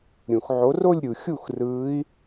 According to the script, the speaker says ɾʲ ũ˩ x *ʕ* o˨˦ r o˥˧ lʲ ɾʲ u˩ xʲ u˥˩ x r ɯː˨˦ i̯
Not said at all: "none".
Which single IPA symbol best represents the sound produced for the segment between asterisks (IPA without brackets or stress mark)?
ʕ